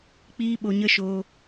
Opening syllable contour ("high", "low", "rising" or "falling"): high